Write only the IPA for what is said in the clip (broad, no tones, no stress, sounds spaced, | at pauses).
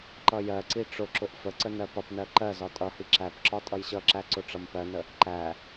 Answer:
ǃ ʌ j ɜ ǀ i ʈ͡ʂ ʊ ǁ ʊ ʔ f ə ǀ ə n ɜ p ʌ p n ɜ ǃ ɜ z ɒ tʼ ʌ h i ǁ æ p ǁ ɒ tʼ ʌ j ɕ ʌ ǁ æ ǀ ʊ ʈ͡ʂ ʌ m p ɜ n ə | ǃ æ